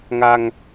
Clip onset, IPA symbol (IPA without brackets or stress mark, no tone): ŋ